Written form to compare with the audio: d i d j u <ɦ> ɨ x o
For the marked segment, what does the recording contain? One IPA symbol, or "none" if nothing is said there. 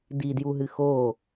ɦ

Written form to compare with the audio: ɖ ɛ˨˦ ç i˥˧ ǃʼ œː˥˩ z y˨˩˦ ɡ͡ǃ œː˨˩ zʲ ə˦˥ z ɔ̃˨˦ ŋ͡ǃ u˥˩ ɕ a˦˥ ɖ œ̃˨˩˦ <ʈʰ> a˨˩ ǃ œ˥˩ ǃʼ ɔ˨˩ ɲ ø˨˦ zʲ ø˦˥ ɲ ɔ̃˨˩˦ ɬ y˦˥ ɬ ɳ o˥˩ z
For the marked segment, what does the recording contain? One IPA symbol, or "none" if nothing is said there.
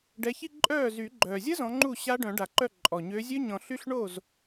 ɖ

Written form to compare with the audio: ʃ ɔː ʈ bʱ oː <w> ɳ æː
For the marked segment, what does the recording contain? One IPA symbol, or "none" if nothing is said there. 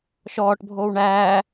w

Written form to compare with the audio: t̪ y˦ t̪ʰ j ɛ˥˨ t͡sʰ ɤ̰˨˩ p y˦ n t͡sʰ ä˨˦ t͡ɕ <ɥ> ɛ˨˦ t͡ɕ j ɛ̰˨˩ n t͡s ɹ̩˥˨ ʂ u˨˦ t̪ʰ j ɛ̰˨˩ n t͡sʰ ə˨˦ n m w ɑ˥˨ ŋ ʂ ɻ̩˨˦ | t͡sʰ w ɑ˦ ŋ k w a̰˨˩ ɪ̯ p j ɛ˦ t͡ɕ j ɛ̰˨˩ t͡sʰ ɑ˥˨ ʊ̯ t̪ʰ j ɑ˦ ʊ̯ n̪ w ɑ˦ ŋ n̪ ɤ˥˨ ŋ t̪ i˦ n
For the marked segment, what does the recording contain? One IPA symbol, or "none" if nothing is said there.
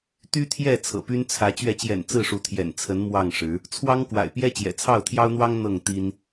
ɥ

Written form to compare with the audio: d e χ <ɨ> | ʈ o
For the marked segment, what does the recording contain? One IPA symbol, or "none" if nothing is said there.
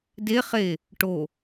e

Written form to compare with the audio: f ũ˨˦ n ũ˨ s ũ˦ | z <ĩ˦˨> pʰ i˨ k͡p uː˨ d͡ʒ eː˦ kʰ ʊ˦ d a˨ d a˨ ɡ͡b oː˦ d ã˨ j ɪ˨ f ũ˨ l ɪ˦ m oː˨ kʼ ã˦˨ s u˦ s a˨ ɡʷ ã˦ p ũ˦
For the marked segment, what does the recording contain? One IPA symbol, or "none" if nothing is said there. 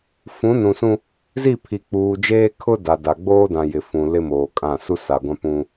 i˦˨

